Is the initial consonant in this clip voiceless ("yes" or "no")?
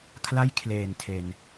yes